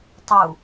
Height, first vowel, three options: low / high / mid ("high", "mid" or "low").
high